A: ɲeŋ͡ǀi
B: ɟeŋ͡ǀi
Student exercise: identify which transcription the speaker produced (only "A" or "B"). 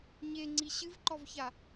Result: A